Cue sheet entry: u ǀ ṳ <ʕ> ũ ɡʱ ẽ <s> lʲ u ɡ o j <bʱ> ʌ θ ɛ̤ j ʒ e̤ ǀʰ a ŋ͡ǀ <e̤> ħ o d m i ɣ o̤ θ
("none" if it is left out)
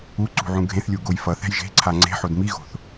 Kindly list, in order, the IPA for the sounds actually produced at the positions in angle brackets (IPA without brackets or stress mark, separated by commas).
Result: ʕ, θ, f, e̤